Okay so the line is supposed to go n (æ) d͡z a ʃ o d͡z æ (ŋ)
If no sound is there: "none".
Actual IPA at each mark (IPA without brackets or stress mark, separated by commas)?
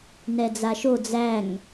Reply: ɛ, ŋ